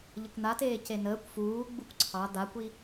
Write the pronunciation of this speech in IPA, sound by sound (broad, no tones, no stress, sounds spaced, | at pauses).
ʎ ə kʷ n̪ a t eː c e n əː kʷ f uː ɡ͡b u kʷ ǀʰ ɑ d̪ a kʷ i